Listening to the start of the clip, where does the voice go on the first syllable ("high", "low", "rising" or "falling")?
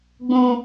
high